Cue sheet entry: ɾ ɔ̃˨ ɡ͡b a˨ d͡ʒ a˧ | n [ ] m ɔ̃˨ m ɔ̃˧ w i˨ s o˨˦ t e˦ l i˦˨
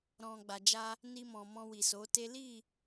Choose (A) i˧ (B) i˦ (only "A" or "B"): A